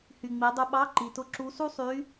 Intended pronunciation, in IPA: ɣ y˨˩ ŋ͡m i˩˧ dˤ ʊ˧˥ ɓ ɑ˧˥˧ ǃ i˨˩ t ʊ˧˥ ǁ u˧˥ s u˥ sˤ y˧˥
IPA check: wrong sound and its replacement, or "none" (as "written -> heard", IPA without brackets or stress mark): ɣ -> h